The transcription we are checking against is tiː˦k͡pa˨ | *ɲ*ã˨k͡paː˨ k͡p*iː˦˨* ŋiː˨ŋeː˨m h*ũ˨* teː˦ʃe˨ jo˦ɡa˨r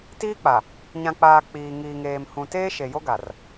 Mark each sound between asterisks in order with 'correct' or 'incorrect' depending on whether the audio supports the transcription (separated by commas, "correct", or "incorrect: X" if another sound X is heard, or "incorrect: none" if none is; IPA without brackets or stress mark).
correct, incorrect: iː˨, correct